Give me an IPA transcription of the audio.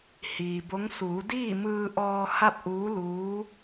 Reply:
h iː˩ b o˧˥ ŋ s uː˩˧ d iː˥˨ m ɯː˧ ʔ ɔː˧ h a˥˨ p̚ ʔ uː˧˥ l uː˧˥

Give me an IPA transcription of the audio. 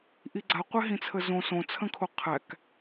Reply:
ʔ i ɡ͡ǀ a qʷ ɛ ɦ ĩ t͡sʰ ə z õ s õ t͡sʰ ə̃ kʰ o qʰ æ k

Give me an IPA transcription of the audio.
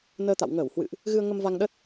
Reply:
n əː˧ t̪ a̰˧˨ w ŋ əː˧˩ w h w ɨ̰˧˨ ʔ | ɣ ɨ˧ ə̯ ŋ ə˧ m v a˧ ŋ ɗ ə˦˥ t̚

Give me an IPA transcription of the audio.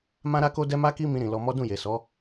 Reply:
m ã˦ ɾ a˦ k o˦ d ɛ˦ m a˦ k i˦ m ĩ˧ ɾ ĩ˨ l ɔ˧ m ɔ˦ d ũ˦˨ j e˨ s ɔ˨˦

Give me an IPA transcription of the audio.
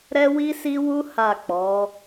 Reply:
ɾ ɛ˦ w i˦ s i˦ w u˦ h a˦˨ k͡p ɔ˨˦

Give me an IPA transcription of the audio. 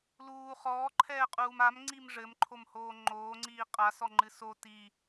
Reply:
l uː χ ɔː ǃʰ ɛː qʼ uː m a m ŋ͡ǀ i m ʐ ɘ m ǃʰ o m h oː ŋ͡ǃ oː ŋ͡ǀ iː qʼ a s ɔ ŋ͡ǃ ɨ s o t i

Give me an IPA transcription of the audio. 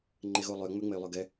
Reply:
ŋ͡ǃ e ɣ o lˠ ø ŋ͡m ø ŋ͡m e y̯ lˠ œ ɡ ɛ

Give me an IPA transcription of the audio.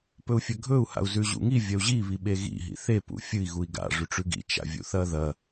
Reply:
p ɵ u̯ fʲ ɐ ɡʱ ɵ u̯ h a̰ u̯ z ʉ ʑ ṵ ŋ i vʲ ɐ u̯ ʑ i β i ɓ e ɣ ḭ ɦ ḭ θ e p ṵ fʲ ɨ i̯ ɣ u i̯ ɡ a̰ ʐ ʉ ʈ͡ʂ ʉ ɡ ḭ t͡ʃ a̰ vʲ ṵ θ ɐ ð ɐ

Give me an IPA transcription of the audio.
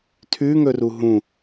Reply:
tʰ ʉ ŋ ɵ r u ɦ ũ

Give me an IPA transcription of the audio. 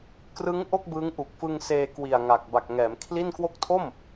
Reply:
k r ɯ˦˥ ŋ ʔ o˥˩ k̚ b ɯː˦˥ ŋ ʔ u˨˩ k̚ f ɯ˧ ŋ s eː˧ k w i˨˩ a̯ ŋ a˨˩ k̚ b a˨˩ k̚ ŋ ɛː˩˦ m kʰ l i˥˩ n k w o˦˥ k̚ tʰ o˥˩ m

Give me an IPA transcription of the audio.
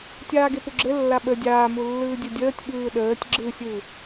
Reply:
tʲ aː ɡ e p u ɡ͡ǁ ɘ lː a ɓ ə dʲ aː m u lː ɯː dʲ ɘ dʲ əː tʲ ɓ ɯː ɗ əː tʲ ɡ͡ǁ ɯ sʲ ɯ

